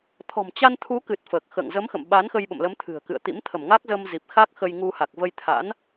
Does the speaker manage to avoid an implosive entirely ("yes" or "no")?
no